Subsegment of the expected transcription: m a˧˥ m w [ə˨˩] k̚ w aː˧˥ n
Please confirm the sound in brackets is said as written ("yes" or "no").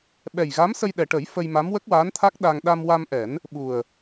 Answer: no